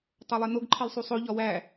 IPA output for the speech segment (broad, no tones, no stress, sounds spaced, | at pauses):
tˤ o lˠ e n o ɡ ǃʰ i lˠ sˤ u sˤ o ʎ ɒ w æ